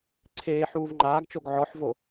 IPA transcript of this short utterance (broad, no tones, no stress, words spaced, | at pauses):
ǀʰeː ħuːvŋ͡ǃaːɡt͡ʃoɡ ʕɔħvo